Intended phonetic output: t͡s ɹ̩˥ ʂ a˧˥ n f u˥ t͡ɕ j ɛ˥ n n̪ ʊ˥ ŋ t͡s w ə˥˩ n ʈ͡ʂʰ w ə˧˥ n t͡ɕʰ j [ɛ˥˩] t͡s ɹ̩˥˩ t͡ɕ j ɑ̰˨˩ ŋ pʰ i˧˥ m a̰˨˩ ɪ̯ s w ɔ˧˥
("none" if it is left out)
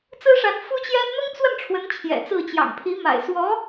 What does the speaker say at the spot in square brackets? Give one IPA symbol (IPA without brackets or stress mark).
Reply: ɛ̰˨˩